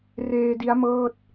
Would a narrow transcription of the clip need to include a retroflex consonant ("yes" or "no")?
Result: no